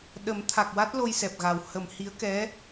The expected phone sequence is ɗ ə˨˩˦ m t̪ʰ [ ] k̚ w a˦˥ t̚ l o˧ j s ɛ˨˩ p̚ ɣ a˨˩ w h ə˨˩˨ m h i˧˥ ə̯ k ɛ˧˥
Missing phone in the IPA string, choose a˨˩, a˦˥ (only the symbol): a˨˩